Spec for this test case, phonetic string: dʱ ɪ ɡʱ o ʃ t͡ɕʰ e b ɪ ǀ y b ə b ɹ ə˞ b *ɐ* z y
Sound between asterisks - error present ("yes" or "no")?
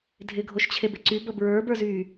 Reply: yes